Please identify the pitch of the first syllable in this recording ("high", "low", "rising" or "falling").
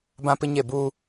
high